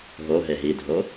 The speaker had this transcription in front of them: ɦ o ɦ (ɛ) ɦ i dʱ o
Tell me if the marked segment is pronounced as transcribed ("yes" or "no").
no